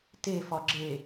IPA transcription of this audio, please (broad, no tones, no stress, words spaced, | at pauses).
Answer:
te fɒɡ͡ǁe